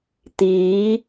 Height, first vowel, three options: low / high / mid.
high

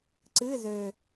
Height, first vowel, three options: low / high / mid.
high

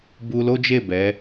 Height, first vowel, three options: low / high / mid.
high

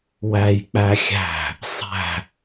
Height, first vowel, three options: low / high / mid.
low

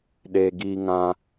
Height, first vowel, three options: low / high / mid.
mid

